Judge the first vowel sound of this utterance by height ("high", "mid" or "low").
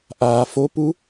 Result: low